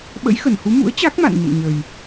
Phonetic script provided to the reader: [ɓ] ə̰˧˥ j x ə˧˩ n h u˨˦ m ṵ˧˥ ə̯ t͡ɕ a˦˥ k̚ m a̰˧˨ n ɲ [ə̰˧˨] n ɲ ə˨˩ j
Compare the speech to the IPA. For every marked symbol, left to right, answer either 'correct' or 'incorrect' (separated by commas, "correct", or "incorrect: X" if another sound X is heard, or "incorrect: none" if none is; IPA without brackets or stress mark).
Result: correct, correct